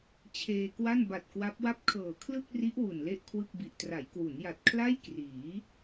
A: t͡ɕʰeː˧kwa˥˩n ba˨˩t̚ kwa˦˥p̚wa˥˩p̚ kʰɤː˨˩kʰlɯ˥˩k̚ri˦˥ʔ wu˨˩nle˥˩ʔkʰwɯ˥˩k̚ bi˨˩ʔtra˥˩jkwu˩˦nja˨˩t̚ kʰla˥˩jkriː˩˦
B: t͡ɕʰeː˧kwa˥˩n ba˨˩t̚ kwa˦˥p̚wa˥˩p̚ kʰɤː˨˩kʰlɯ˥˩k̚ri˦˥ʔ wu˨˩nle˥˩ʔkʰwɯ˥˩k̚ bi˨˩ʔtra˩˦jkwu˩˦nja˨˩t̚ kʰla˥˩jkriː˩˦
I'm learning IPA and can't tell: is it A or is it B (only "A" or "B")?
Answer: B